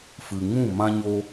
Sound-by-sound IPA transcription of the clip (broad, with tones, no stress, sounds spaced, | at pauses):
f ɨ˨ ŋ ũ˦˨ m ã˦ ɲ o˦